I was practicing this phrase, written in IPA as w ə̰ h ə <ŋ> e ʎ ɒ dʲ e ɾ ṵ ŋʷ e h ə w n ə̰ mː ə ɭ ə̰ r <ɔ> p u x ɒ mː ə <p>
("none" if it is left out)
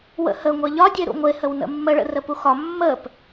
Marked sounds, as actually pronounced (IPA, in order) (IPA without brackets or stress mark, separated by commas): ŋʷ, ə, p